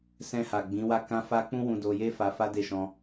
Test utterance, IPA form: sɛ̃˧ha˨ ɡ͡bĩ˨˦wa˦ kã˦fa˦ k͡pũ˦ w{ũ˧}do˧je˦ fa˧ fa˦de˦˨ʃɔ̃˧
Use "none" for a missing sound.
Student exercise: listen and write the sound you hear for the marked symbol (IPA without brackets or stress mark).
ũ˧